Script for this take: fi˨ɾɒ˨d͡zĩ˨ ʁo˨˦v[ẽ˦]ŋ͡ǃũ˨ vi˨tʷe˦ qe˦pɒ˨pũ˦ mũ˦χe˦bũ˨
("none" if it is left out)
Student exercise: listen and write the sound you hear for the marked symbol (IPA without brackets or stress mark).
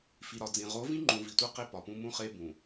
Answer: ĩ˦